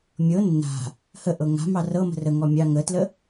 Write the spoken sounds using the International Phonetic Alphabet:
mʲɤ nːa̤ | həʔɤ ŋa̤mɑ rɤmə̤ rəŋɔ mʲɑ ŋətlə

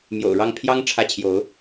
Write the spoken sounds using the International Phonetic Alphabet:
mjo̰˨˩ʊ̯ɻɑ˥˨ŋpʰjɑ˦ŋ ʈ͡ʂʰä˦ t͡ɕʰjo˨˦ʊ̯

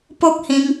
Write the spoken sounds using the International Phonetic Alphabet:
po˦k̚hĩ˧ŋ

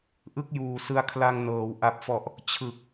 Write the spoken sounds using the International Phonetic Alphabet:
ʔɯ˥˩k̚juː˨˩sɯ˧a̯ kʰla˧ŋnɤː˩˦w ʔa˨˩p̚fɔ˨˩ʔ | t͡ɕʰɯ˨˩k̚

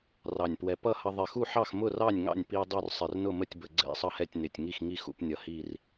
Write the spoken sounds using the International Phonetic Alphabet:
rɑ˧˩nʲpwɛ˧ pʌ˥˨hʌ˧ ðˤɪ˧˩xu˥˨ħɑ˥˨x mʊ˥˨rɑ˥˨nʲ ŋɑ̰˥˨nʲ pi˧ dˤu˥˨rsˤɪ˧˩r nʊ˥˨mə˥˨tʲbə˧˩ ɡ͡ǀɛ̰˥˨ sˤʌ˥˨hɛ˥˨tʲnɪ˧˩tʲ ŋi˥˨xŋi˥˨xṵ˥˨pnʲʌ˧˩ hi˥˨r

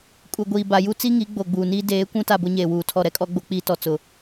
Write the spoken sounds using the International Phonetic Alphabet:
kʼu˨ɡʷiː˨ ba˨ ju˦t͡si˦ŋi˨˦ ɡ͡bo˨ɡ͡buː˨niː˦ deː˨˦ kʷũ˦ta˦˨ bʊ˦ɲeː˨wuː˨tʰɔ˦˨ ɾɛ˦kʼɔ˦ ɡ͡bo˦ k͡piː˦tɔ˨ t͡sʊ˨

